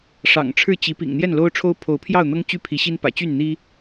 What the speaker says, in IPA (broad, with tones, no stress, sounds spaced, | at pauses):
ʂ ɑ̰˨˩ ŋ ʈ͡ʂʰ ɻ̩˥˨ t͡ɕ i˨˦ p ḭ˨˩ ŋ n̪ j ɛ˥˨ n l o˦ ʊ̯ ʈ͡ʂʰ o˦ ʊ̯ pʰ o˨˦ ʊ̯ pʰ j ɑ˥˨ ʊ̯ n̪ ɤ˦ ŋ t͡ɕ y˥˨ pʰ i˨˦ ɕ i˦ n p ä̰˨˩ t͡ɕ y˥˨ n n̪ i˦